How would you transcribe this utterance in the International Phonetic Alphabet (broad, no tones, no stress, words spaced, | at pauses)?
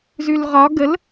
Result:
zʉlʁɒ ɡəl